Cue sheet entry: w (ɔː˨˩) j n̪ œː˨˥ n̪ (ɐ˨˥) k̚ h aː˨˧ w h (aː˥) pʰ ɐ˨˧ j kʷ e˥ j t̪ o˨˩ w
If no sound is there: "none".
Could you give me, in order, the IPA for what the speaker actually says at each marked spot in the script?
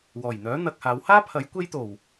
ɔː˨˩, ɐ˧, aː˥

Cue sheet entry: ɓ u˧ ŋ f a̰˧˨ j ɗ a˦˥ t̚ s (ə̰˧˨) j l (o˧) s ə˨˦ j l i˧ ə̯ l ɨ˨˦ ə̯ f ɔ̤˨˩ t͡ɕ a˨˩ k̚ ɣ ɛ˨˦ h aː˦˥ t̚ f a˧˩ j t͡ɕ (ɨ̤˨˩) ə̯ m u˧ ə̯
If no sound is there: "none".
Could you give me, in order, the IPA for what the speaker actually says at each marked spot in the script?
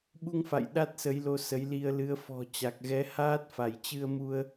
ə˨˦, o˧, ɨ˧

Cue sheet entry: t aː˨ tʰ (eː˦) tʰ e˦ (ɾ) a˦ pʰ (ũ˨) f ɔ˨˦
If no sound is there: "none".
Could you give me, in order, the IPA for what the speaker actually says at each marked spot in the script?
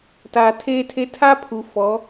eː˦, tʰ, u˨

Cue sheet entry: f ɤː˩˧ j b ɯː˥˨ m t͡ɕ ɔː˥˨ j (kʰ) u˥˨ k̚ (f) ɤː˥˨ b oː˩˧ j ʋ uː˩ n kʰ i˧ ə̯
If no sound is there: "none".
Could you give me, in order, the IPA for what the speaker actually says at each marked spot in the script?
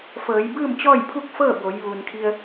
pʰ, f

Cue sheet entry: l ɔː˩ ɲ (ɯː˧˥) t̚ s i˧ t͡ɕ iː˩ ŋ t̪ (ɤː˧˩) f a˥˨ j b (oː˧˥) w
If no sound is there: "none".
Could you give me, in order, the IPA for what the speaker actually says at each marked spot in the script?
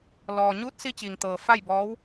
uː˧˥, ɤː˩, ɔː˧˥

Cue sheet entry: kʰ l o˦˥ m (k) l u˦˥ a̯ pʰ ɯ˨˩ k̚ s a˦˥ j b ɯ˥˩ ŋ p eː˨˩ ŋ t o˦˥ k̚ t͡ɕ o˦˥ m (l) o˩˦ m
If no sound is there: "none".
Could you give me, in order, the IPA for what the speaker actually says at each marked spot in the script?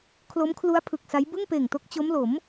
kʰ, l

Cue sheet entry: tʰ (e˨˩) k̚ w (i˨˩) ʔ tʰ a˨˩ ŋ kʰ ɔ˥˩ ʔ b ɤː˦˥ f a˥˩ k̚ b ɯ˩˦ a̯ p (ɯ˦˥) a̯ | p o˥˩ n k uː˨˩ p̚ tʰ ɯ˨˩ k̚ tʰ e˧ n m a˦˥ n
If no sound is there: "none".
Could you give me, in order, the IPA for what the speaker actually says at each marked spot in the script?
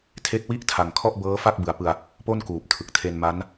e˦˥, i˥˩, ɯ˧

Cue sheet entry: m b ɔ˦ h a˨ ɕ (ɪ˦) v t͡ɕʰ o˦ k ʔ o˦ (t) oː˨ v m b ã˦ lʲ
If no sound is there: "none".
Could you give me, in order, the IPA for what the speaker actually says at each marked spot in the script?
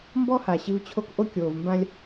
ɪ˦, kʲ

